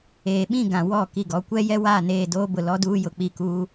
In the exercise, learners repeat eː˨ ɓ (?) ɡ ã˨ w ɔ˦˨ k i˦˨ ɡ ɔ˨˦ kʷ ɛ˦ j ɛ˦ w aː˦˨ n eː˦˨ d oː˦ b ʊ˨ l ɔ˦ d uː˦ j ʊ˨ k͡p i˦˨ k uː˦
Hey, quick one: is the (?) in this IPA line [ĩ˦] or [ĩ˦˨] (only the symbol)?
ĩ˦˨